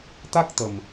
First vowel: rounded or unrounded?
unrounded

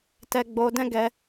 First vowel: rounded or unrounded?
unrounded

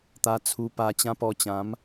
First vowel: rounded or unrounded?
unrounded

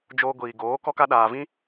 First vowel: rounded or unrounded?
rounded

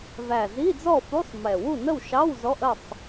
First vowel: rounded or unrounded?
unrounded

